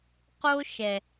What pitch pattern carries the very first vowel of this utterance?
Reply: high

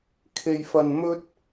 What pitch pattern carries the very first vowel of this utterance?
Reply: low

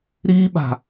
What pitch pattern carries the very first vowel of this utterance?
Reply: high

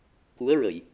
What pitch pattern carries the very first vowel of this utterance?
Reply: rising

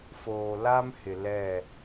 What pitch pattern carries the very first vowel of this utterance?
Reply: low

